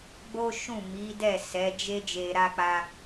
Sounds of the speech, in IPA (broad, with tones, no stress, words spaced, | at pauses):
ɡ͡bo˦ʃũ˦˨ mi˨˦dɛ˦˨sɛ˨˦d͡ʒe˦ d͡ʒe˧ɾa˦k͡pa˦